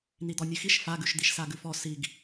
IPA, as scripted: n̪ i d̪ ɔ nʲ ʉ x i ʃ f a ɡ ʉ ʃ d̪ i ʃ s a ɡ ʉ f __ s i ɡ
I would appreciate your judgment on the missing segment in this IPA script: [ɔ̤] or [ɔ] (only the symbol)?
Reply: ɔ